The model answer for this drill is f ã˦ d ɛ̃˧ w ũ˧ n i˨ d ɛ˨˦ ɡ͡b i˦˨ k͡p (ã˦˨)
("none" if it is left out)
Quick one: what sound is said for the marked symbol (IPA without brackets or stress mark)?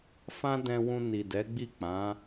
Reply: ã˨˦